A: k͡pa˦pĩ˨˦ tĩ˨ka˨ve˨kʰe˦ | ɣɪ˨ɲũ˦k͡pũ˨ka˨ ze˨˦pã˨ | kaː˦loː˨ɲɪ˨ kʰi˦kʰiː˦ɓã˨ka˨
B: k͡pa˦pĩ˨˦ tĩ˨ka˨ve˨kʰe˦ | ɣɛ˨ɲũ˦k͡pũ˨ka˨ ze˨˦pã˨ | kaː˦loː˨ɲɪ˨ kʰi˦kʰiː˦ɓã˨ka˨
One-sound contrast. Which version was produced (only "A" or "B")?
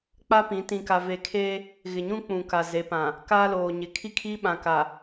A